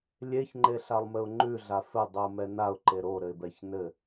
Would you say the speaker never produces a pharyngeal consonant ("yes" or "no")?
yes